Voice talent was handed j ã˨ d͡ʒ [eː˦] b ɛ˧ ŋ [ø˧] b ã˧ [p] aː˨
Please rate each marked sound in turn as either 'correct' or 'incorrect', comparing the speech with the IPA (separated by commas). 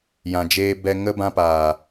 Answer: incorrect, incorrect, correct